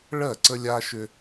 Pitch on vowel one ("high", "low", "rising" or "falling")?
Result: falling